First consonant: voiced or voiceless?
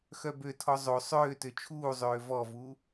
voiceless